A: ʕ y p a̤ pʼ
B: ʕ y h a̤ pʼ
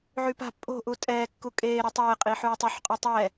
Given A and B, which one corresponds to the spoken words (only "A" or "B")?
A